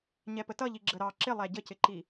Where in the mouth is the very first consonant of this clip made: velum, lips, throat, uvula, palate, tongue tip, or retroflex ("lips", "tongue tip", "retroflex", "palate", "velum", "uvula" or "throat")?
palate